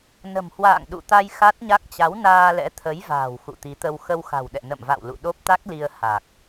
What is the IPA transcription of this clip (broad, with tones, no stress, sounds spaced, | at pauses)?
n ə̤˨˩ m h w a̰ː˧˨ ŋ ɗ ṵ˧˨ t̪ a˧ j x a˦˥ t̚ ɲ a˦˥ k̚ t͡ɕ a˨˦ w n aː˧ l ɛ̰˧˥ t̪ʰ ə˨˦ j v a̤ː˨˩ w x ṵ˧˨ t̪ i˨˦ t̪ ə˧ w x ə˧ w x a̤˨˩ w ɗ ɛ̰˧˨ n ə̰˧˨ m v a̰˧˨ w l ṵ˧˨ ɗ o˦˥ p̚ t̪ a˦˥ k̚ l i˧ ə̯ h a˨˩ k̚